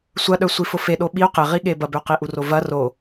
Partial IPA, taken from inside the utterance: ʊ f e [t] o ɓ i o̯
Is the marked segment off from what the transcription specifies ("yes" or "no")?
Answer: yes